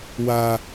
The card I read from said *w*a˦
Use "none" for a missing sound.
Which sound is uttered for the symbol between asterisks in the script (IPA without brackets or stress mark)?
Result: w